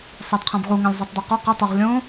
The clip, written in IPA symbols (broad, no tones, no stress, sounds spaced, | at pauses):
sˤ æ d qʰ æ̃ b ʁ u ŋ æ̃ lʲ zˤ o tˤ d ɒ q o q e tˤ o ʁ lʲ õ